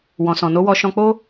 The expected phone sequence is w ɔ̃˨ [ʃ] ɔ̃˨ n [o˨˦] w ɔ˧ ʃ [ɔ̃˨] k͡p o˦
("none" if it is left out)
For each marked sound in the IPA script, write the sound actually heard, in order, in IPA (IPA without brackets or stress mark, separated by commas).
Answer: s, o˨˦, ɔ̃˧